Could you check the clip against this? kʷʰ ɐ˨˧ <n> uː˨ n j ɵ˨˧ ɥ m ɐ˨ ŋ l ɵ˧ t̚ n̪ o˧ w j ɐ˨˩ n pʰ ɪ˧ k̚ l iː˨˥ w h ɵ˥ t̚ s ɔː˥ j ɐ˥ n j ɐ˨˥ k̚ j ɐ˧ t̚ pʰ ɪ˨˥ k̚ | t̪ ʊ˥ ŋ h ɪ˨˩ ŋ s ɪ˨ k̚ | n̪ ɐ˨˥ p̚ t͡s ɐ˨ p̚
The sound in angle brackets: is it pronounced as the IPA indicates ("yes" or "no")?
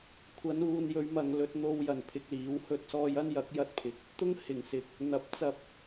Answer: yes